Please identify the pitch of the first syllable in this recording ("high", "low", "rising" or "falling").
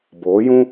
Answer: rising